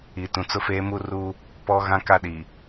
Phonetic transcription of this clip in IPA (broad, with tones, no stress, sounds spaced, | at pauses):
i˨ t ũ˨ t͡s ʊ˦ f eː˦ m u˦ r u˦ | p ɔ˦ ɣ ã˦ k a˦ ɗ i˨